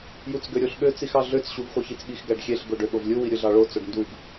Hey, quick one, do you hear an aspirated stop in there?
no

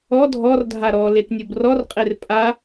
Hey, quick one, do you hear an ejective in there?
yes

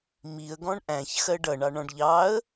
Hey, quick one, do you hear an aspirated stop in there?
no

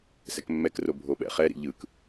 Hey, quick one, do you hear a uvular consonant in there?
yes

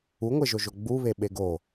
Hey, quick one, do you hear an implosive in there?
yes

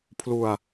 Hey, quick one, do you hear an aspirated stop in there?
yes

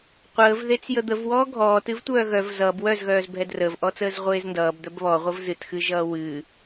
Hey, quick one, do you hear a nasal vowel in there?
no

